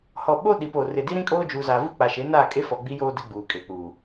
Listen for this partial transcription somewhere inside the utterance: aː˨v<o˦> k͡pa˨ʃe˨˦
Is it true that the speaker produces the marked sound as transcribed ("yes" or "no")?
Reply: no